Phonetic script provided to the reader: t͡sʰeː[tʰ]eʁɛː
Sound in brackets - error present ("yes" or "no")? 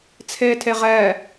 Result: no